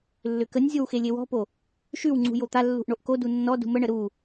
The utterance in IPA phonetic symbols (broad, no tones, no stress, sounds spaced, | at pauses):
lː ʏ k ə nʲ zʲ o w x e lʲ e w ɔ̤ p o | ʃ ʉ w ŋ͡ǀ ṳ j o t̪ a lː ṳ ʔ ɳ o ʔ k o d u nː ɔ d ṳ m ə ɳ ə ɾ u